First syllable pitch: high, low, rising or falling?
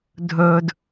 low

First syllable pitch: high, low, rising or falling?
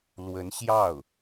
rising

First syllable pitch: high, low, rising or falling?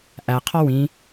low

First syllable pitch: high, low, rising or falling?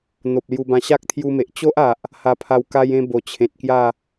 low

